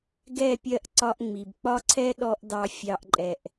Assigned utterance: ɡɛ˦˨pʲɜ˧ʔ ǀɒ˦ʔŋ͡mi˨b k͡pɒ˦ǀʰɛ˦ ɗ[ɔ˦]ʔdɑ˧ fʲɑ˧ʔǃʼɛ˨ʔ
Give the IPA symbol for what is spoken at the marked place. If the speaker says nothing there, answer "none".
ɔ˦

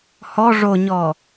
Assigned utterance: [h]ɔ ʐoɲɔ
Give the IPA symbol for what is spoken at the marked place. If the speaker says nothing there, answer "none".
h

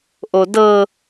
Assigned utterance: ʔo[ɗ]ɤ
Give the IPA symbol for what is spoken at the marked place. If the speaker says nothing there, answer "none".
d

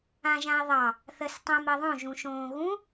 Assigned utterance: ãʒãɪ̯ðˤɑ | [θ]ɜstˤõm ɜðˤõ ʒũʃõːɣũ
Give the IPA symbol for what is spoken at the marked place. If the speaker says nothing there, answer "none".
θ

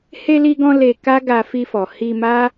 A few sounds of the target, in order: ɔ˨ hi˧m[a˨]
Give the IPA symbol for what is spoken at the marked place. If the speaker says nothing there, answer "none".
a˦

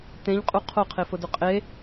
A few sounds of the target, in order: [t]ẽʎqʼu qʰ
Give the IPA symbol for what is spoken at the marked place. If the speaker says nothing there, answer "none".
t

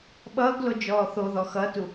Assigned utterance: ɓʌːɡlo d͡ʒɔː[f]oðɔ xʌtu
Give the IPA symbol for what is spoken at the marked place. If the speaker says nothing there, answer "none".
θ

